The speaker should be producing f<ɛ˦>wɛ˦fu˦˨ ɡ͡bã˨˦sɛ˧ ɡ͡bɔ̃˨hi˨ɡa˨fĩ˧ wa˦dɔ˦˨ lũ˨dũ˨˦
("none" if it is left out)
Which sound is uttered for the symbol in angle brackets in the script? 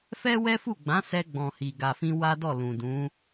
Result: ɛ˦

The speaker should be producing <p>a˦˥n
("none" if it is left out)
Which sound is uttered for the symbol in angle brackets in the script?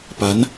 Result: p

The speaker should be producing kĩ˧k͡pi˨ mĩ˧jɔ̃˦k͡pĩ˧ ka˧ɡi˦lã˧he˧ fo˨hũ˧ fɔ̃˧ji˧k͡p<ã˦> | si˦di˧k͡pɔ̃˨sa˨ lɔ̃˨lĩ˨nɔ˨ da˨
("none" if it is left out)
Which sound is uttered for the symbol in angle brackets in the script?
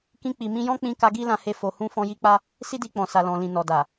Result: a˦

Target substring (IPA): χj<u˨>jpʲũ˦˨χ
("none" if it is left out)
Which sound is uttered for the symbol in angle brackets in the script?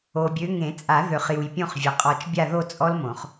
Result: u˨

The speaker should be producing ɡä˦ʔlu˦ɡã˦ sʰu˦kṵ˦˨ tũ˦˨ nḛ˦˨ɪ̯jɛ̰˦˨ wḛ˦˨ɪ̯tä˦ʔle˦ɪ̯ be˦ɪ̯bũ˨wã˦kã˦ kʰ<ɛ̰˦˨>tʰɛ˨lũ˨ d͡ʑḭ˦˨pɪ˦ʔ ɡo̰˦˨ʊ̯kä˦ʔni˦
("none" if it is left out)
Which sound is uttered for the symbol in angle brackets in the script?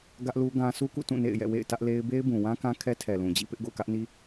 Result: ɛ˦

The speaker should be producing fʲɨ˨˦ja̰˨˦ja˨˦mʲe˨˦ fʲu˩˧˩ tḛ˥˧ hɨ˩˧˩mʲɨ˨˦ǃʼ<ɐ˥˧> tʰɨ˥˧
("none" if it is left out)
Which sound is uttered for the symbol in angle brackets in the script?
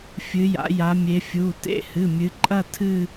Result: ɐ˥˧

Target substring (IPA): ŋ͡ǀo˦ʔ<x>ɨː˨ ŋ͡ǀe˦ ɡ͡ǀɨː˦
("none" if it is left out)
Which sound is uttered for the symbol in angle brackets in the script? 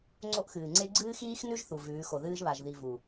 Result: x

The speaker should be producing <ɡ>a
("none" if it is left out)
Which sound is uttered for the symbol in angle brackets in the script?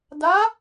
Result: d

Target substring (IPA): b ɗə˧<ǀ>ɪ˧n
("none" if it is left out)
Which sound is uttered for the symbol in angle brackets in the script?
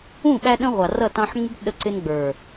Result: ǀ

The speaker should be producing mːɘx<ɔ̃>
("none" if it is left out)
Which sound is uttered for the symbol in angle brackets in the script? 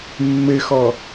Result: ɔ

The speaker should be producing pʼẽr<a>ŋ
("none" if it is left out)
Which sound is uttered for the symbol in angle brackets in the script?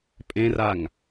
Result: a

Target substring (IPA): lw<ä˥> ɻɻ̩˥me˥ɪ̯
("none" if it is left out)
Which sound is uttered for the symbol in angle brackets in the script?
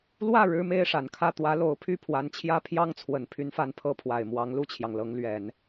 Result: ä˥˩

